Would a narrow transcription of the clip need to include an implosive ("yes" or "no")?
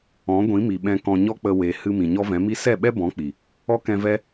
yes